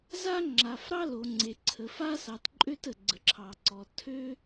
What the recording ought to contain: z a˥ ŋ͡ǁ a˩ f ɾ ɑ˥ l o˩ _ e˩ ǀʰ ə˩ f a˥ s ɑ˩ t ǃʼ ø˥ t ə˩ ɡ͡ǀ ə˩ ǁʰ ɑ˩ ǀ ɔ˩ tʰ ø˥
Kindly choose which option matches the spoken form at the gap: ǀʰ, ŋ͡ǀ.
ŋ͡ǀ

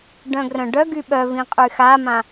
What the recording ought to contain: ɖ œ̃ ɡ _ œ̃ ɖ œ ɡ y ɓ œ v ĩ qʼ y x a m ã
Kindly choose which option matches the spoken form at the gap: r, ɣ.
r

